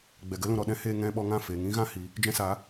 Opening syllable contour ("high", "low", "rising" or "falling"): low